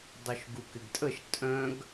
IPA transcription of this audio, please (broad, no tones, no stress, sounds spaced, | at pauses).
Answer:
dˤ œ ʃ ɡ u k ɪ ɡ tʼ ə ʃ tʼ œ̃ ɡ